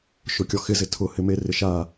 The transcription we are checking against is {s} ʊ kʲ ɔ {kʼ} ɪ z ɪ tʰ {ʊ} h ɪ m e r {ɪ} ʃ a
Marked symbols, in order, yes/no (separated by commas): no, no, yes, yes